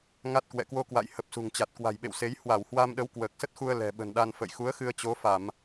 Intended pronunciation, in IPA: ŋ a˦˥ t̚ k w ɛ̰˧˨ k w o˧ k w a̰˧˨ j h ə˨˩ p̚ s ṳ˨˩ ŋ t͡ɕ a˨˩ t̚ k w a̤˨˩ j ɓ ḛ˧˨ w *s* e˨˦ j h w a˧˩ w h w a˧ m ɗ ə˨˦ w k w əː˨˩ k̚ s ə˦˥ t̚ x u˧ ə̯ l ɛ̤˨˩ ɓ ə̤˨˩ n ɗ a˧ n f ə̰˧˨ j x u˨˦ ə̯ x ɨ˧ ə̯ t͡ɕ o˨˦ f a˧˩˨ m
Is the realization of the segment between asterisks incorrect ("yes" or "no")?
no